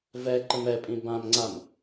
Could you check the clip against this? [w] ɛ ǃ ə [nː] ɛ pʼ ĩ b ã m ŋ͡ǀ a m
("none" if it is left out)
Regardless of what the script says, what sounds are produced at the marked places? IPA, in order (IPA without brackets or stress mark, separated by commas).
v, m